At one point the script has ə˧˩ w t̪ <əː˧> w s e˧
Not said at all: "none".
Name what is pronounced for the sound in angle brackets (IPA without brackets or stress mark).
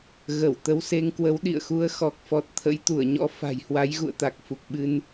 ə˧